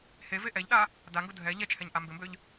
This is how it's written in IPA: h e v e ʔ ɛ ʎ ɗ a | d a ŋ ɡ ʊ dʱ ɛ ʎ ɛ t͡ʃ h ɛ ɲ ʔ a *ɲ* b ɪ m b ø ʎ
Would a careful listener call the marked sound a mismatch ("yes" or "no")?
yes